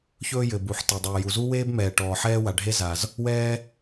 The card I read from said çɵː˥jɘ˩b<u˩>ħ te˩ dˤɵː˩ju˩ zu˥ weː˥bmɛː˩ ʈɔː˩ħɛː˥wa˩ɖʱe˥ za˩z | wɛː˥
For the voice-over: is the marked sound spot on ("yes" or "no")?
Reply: yes